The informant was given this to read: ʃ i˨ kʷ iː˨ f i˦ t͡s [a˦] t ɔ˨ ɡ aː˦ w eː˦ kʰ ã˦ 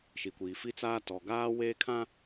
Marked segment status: incorrect: aː˦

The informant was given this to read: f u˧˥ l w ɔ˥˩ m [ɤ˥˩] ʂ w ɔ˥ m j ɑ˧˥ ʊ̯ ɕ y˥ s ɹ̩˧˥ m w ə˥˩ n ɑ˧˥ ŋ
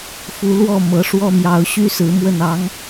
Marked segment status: incorrect: ɤ˧˥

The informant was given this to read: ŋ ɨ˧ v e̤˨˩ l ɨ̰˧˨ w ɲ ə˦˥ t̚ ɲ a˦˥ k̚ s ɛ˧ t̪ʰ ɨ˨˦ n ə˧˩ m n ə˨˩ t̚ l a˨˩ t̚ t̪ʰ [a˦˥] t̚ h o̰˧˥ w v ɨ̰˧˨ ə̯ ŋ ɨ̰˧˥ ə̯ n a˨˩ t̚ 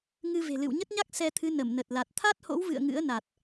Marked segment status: correct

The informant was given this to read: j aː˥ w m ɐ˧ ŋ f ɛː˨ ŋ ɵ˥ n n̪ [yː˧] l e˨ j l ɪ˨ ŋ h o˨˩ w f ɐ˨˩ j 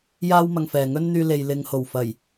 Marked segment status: correct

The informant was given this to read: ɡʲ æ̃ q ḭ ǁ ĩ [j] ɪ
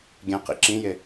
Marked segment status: correct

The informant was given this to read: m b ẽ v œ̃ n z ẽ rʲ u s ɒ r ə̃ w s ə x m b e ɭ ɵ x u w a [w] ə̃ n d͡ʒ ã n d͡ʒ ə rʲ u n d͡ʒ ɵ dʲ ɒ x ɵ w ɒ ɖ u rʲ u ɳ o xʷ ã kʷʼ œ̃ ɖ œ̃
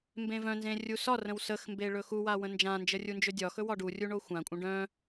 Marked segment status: correct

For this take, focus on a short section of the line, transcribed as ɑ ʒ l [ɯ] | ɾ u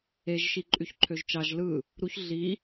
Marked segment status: correct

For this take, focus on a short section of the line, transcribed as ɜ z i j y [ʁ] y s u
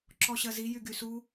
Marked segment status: incorrect: ɡ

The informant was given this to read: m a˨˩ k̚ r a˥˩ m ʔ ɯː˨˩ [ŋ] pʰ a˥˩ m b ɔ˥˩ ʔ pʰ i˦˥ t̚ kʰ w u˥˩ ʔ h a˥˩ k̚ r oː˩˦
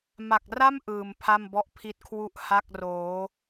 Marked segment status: incorrect: m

